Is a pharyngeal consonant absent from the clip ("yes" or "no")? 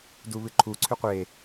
yes